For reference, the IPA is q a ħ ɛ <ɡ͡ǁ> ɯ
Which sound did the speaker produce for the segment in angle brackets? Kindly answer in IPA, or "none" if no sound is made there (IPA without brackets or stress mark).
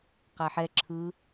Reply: ǁʰ